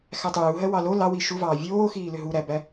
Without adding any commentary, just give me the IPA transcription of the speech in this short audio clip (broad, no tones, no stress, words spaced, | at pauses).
xætˤuːɦɜ wɑlo lɑwi ʃuvɑː vʲoːxiːlʏ ɦuɾæbæ